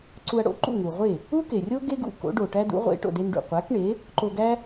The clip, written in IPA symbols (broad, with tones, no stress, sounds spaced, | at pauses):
ǀ u˧ ɐ̯ ɽ o̰˥ ǃ ṵ˥˩ ŋ u˩ ʁʷ e˥˩ | u˥ k e˩ rʲ o˥ ɡ e˥ ɡ ṵ˥˩ k o̰˩˥ ɖ o˩ ʈ æ˥ d ṵ˩˥ ʁʷ ḛ˩˥ ʈ o̰˩ d e˧ n ɖ ṵ˩ qʷ æ˩˥ k ɳ e˩˥ | ǃ o˧ ɡ æ˥